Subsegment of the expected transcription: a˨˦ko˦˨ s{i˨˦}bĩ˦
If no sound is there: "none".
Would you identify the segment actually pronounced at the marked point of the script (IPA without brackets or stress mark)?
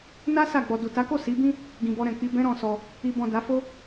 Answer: i˨˦